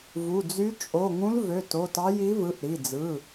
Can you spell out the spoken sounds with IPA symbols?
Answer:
vu˩˧˩d͡zy˧˥ t͡ʃʼo˩˧˩ŋũ˧˥lvø˩˧˩t o˩˧˩tɑ˧˥ ji˧˥vɯ˩˧˩ʔ ɾi˩˧˩d͡zɯ˩˧˩

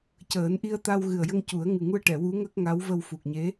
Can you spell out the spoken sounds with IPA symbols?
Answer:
cəː˨˩˦nʔi˧ə̯t̪a˧w ɣɨ˨˩ə̯jə˧ŋcu˨˩˦ə̯ ŋɨ˨˩ŋu˧ə̯ʈɛ˨˩˨ wu˧˥ŋə˦˥k̚ŋa˧˥w və˧wfu˨˩k̚ɲe˧˥

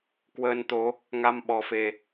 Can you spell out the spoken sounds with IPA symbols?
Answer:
kwəː˧nt̪o˨˦ | ŋa˧m ɓɔ˨˦fe˧

